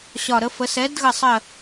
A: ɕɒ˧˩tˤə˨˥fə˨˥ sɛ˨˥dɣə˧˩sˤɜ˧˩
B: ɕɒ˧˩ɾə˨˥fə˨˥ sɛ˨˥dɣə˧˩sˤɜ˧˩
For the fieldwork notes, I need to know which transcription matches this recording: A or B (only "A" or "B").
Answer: B